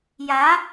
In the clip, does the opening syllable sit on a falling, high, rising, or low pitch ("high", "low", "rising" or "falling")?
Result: rising